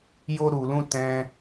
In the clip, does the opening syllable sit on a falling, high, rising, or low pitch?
high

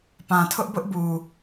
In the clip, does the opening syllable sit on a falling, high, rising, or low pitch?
low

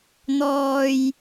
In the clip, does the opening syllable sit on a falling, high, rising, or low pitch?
low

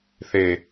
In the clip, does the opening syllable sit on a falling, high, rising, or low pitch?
low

